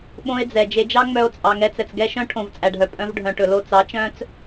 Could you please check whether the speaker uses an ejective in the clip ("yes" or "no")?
yes